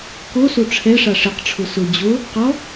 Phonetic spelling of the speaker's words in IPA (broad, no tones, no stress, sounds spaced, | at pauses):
k o s o ʈ͡ʂʰ ɛ ʂ a ʂ ɪ q ʈ͡ʂʰ ʊ s ʊ d͡ʑ o | q ɔ